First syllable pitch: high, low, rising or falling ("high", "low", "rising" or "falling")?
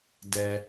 high